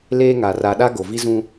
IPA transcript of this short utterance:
leː˦ŋa˨ ra˨ɗa˦ ɡo˨vi˦zũ˦

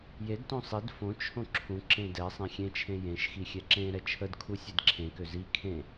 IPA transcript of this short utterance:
jedtõ sˤid fõ t͡ʃʰõǁʰũǁẽ dɛ sˤẽxʲẽt͡ʃʰẽ jẽʃxi xʲɛǁẽɾɛ t͡ʃʰədkʰu sʲedǁʰẽkø zi kʰẽ

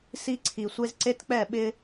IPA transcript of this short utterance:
si˦ ǀʰi˨sʷe˦z ǀe˦tk͡pɛ˦˨ɓɪ˦

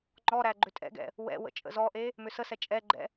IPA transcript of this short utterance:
ŋ͡ǃɔɾæ ɡ͡ǃʏtʼɛ̰ɡɛ̰ | wɛ̰wə̰ t͡ʃʼə̰zɔʔe | mʏsəsɛ t͡ʃʼɛɡ͡ǃɛ̰

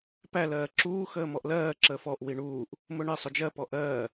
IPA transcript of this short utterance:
pæ lɜːǁuː xəːmɔʔlɜː ǁəːfɔʔ wiɳuːʔ | mʊɳɪ sˤʊd͡ʒɜ pɔʔɜː

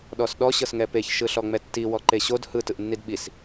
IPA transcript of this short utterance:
ɗɔsɗɔ ɕɤsŋɛpeç ʃɯɬɔŋ͡mɛtːi wɔǃeɕod hɯ tɯʔnːidɓis

